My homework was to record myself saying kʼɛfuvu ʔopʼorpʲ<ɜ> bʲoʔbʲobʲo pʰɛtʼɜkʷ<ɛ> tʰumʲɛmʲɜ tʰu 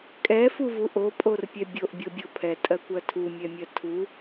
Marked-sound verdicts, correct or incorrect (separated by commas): incorrect, incorrect